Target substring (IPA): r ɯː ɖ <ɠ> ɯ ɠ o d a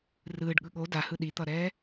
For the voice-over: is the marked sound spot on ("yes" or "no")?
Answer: yes